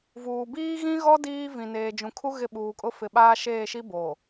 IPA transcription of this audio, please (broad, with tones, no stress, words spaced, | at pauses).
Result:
vuː˨ biː˦ɣĩ˦ɣɔ˦ diː˦vĩ˨ neː˨d͡ʒũ˨kʰu˦ ɣɪ˦˨ɓuː˨kʼʊ˦ fɪ˨ɓaː˦ ʃeː˦˨ʃi˦boː˨